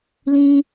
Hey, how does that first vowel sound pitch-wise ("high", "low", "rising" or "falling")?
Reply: high